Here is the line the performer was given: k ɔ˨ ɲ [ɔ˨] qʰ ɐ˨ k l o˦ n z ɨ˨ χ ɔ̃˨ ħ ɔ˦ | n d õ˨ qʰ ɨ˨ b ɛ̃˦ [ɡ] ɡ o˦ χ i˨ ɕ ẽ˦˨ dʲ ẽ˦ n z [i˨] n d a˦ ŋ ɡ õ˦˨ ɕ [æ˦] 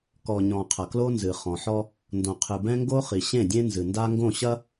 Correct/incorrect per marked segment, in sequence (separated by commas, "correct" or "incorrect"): incorrect, incorrect, incorrect, incorrect